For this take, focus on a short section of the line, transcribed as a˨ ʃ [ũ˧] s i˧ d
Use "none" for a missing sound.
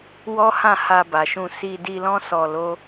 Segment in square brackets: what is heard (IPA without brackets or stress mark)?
ũ˧